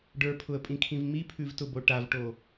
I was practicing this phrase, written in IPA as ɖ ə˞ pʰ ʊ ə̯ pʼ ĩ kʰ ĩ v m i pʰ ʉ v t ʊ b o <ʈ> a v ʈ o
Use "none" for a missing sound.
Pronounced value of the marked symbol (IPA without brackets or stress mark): ʈ